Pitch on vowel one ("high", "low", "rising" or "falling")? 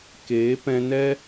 rising